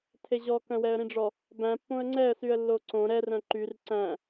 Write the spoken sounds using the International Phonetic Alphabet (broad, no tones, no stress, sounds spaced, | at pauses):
tʰ e ʑ ɔ k œ̃ w ɛ ə̯ ɾ ĩ ɖ͡ʐ ɔ | b æ̃ pː õ ə̯ ŋ͡ǀ ɛ ə̯ s y ə̯ lː o ǀ õ ɾ ɛ r œ̃ ǃ y r ǀ æ̃